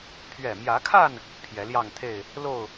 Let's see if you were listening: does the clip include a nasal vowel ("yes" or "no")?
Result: no